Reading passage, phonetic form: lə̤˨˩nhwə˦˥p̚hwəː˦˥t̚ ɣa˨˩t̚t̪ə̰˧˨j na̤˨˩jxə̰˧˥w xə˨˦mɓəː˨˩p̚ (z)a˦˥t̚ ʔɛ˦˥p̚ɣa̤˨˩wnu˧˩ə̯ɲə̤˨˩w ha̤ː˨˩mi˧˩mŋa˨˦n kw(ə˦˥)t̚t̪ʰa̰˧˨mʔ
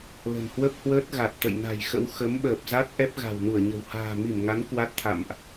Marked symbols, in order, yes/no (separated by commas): yes, no